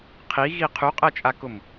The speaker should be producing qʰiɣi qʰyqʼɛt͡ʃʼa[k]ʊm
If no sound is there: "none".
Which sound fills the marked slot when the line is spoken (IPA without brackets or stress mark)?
k